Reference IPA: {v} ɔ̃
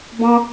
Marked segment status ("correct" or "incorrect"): incorrect